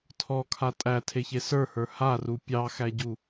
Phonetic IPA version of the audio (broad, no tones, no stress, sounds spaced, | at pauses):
tʰ ɔ kʰ a tʼ æ tʰ e ç e s ə˞ h ə˞ h a r u pʲ ɑ x æ ɟ u